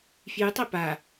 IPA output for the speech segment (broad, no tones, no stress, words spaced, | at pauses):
fjɨtˤɛ pa